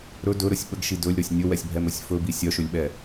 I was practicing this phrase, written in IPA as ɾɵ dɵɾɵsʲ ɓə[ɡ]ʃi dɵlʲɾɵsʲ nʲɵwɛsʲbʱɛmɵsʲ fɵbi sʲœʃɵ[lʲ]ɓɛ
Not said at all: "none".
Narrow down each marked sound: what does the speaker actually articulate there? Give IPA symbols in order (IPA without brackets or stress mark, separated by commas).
ɡ, lʲ